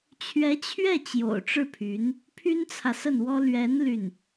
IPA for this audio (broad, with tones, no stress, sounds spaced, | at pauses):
t͡ɕʰ ɥ ɛ˧˥ t͡ɕʰ ɥ ɛ˥˩ t͡ɕ j o̰˨˩ ʊ̯ ʈ͡ʂ ɻ̩˥˩ pʰ y˧˥ n | pʰ y˥ n t͡sʰ ä˨ s ə˥˩ n w ɔ˥ l ɥ ɛ˧˥ n l y˥˩ n